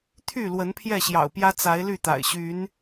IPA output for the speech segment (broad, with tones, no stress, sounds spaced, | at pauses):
t̪ʰ y˥˨ l w ə˨˦ n pʰ j ɛ˥˨ ɕ j ɑ̰˨˩ ʊ̯ p j ä˦ t͡s a˨˦ ɪ̯ l y˥˨ t̪ a̰˨˩ ɪ̯ ɕ y˨˦ n